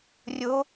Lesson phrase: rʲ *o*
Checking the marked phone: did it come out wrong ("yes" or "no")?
no